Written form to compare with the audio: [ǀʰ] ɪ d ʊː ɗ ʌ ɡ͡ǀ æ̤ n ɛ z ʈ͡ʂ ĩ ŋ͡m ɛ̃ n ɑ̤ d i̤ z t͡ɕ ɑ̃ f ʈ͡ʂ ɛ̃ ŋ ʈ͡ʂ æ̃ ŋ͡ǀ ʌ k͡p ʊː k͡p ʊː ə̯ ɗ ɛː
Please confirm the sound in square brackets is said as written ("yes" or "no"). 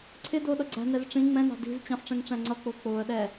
yes